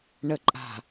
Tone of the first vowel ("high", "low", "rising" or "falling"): low